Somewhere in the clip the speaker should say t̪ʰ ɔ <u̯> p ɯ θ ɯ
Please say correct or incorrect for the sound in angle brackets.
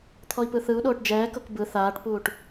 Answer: incorrect